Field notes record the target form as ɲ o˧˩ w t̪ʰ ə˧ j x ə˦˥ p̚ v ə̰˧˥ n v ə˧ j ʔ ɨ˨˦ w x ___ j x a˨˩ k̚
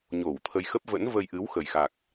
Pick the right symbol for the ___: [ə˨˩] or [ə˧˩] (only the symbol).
ə˨˩